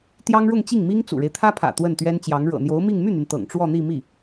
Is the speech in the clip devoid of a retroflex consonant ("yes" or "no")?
no